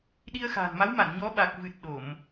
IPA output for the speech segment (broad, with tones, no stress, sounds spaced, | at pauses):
ɗ i˧ ə̯ x a̤ː˨˩ n m a˨˦ w m a˧˩ n ɲ ɔ˨˦ ɓ a˨˩ k̚ v ɨ˨˩ t̚ ɗ o˧˩˨ m